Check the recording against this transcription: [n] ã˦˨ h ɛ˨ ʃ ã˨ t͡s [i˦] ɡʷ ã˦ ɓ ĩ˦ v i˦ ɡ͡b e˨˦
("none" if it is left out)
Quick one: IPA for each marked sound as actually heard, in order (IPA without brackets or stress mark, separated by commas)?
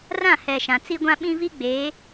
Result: r, i˦